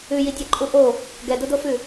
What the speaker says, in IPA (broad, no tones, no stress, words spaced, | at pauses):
ʉjidʲɛǃʼu ʔo | ɡɛdʊdofʉ